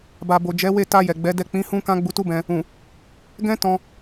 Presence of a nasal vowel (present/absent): present